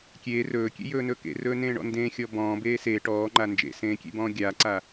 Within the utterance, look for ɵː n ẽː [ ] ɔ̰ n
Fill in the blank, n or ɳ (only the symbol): ɳ